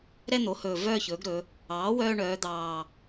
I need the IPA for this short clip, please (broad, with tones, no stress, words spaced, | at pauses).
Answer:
ɾɛ˥˧n̪o˩˥hɵː˨˩ vœː˥˧çɵː˩˥ɡɾɵ˩˧ | ɑː˩˥wœː˧ ɳœː˩˧d̪ɑː˨˩